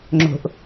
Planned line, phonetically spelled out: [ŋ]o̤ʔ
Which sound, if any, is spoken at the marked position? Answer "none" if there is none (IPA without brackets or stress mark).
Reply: ŋ͡ǁ